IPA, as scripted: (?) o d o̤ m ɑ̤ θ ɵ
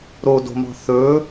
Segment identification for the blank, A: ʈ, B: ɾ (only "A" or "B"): B